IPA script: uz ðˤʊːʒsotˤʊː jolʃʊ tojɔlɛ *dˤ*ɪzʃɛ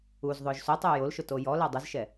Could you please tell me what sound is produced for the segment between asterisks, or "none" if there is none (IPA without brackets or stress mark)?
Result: dˤ